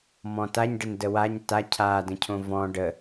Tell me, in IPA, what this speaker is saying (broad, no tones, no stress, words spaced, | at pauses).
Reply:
mɔ̃taɲɖən dəwaɲ ta cʰadə̃cʰõ vɔ̃ ɖə